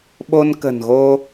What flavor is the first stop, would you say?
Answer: implosive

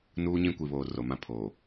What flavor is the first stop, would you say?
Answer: plain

